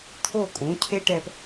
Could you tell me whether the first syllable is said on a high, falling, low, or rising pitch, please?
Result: falling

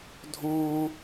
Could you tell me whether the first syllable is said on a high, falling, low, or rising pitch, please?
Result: high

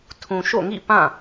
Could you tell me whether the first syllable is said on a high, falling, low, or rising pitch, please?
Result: low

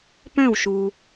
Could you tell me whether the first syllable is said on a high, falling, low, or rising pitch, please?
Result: falling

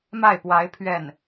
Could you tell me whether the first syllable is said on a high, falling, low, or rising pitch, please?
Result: falling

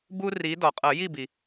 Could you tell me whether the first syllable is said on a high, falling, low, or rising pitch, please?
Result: high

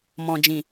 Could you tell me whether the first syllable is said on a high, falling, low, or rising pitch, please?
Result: low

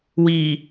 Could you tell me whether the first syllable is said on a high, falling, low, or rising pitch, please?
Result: low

